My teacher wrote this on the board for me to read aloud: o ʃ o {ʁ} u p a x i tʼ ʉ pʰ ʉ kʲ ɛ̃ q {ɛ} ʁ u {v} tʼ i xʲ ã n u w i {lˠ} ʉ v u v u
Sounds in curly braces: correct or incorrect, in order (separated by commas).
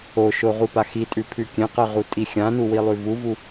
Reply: correct, incorrect, incorrect, correct